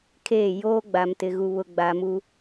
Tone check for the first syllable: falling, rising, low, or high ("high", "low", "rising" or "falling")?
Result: falling